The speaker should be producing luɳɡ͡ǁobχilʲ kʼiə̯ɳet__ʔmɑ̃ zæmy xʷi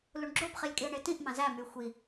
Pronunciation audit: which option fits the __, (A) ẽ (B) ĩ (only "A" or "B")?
B